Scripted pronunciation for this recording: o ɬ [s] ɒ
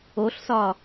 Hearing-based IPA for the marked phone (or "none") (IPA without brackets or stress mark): s